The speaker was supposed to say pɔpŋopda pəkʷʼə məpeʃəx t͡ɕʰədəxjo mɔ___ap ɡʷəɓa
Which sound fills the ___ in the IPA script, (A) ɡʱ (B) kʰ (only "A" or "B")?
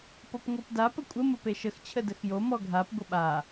A